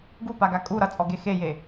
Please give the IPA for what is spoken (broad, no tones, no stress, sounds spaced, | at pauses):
ɡ u p a ɡ a kʼ u ɾ ʌ t͡sʼ ɔ ɡ e x e j e